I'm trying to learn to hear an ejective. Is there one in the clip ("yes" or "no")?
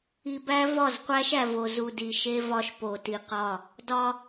no